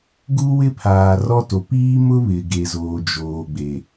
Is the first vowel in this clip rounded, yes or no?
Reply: yes